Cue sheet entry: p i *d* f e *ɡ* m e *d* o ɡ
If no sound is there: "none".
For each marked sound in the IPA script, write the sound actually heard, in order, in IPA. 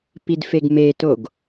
d, ɡ, t

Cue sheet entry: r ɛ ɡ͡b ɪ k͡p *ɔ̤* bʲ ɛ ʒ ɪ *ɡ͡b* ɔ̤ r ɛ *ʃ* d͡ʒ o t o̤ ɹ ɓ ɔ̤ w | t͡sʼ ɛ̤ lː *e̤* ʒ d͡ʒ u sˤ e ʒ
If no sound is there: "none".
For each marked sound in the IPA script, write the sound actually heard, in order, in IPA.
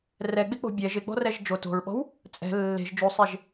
o̤, ɡ͡b, ʒ, e̤

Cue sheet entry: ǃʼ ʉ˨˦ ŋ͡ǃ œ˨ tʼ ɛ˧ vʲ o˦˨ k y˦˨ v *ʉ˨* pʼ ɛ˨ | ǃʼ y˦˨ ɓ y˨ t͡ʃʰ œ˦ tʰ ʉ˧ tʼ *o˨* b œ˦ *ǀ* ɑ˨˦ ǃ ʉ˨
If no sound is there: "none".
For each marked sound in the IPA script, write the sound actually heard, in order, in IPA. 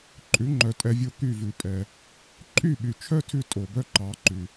ʉ˨, o˨, ǃ

